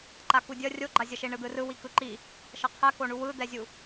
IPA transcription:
ǃ a k u dʲ ʌ rʲ o ɡ͡ǃ a zʲ ʌ ʃ e ɳ ɯ d̪ ɯ r ɯ w i k ɯ ǃ i | ʃ ʌ qʰ ɛ k o ɳ u w ɯ d̪ ɛ zʲ u

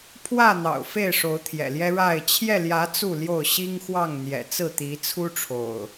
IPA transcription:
pʰ w ä˥˨ n̪ ɑ̰˨˩ ʊ̯ f e˥˨ ɪ̯ ʂ o˨˦ ʊ̯ t̪ʰ j ɛ̰˨˩ l j ɛ˦ ɻ a˥˨ ɪ̯ t͡ɕʰ j ɛ˥˨ l j ä˨˦ t͡s u˥˨ l j o˥˨ ʊ̯ ɕ i˦ ŋ x w ɑ˥˨ ŋ n̪ j ɛ̰˨˩ t͡s ɹ̩˥˨ t̪ i˨˦ t͡sʰ u˦ ʈ͡ʂʰ o̰˨˩ ʊ̯

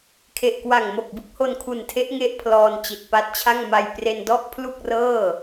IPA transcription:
kʰ e˨˩ ʔ k w a˨˩ ŋ m o˨˩ k̚ b ɯ˥˩ k̚ h o˧ n kʰ u˨˩ n tʰ e˦˥ ʔ ŋ e˥˩ ʔ pʰ l ɔː˧ n t͡ɕ i˨˩ t̚ p a˦˥ t̚ t͡ɕʰ a˥˩ ŋ m a˧ j p r e˧ n d ɔ˥˩ ʔ pʰ l u˥˩ k̚ r ɤː˥˩

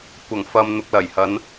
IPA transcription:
kʷ ɐ˨˩ ŋ f ɐ˨ m n̪ ʊ˨ k̚ l ɐ˨˩ j h ɐ˨˧ n

